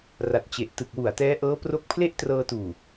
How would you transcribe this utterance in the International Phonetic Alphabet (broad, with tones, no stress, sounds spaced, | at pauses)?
r a˨˩ t̚ t͡ɕ e˨˩ ʔ t ɯ˨˩ k̚ w u˨˩ a̯ t ɛː˦˥ ʔ ɤː˦˥ p r o˦˥ k̚ pʰ l e˥˩ ʔ t r ɤː˧ t uː˨˩